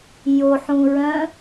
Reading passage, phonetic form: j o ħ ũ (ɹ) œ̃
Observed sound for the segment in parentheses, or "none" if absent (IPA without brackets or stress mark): ɹ